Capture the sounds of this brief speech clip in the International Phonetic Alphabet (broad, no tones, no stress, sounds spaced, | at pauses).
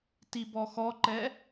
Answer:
t i b ɔ x ɔ ǃ ɛ